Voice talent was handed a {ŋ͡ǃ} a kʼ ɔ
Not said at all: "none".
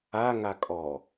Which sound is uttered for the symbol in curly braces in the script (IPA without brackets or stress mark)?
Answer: ŋ